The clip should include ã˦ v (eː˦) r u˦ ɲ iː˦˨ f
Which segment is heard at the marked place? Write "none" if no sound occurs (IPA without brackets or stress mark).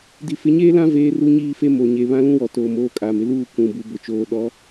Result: eː˦